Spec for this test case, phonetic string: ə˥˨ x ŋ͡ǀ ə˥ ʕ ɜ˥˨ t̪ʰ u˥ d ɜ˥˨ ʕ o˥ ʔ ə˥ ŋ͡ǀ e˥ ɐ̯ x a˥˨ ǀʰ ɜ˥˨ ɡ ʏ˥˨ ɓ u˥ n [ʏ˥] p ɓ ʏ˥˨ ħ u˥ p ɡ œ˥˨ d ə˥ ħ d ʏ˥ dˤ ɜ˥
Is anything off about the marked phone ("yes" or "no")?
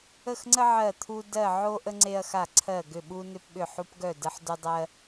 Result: no